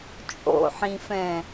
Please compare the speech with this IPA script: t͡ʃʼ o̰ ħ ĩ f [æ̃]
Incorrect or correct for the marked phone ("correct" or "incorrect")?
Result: incorrect